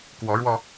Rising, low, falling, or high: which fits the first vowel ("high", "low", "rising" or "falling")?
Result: rising